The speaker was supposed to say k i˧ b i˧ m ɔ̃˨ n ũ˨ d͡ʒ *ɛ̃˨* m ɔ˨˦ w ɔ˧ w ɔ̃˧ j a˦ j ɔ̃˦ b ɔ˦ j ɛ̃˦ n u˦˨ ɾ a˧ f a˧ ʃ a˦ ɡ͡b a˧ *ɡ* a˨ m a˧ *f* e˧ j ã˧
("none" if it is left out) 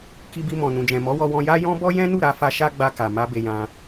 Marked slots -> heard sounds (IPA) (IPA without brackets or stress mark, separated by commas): ɛ̃˨, k, b